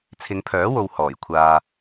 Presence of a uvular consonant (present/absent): absent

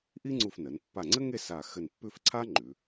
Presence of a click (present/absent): present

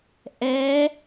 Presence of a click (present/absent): absent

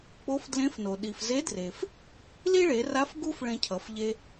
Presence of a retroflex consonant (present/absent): present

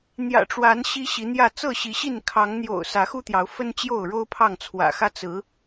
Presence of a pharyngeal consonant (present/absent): absent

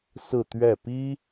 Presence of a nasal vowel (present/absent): absent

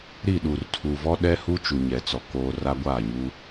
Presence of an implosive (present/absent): present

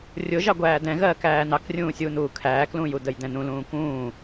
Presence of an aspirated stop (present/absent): present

